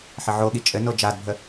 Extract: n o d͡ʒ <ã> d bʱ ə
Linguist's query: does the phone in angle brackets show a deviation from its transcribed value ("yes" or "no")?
yes